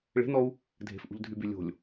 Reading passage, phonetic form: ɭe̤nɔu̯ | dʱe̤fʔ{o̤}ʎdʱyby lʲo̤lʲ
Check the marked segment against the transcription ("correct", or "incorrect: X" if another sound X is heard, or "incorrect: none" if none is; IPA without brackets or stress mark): incorrect: ṳ